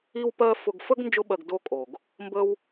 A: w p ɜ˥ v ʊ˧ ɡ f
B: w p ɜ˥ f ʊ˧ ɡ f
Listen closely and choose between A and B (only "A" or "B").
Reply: B